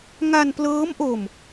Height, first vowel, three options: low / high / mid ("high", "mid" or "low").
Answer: low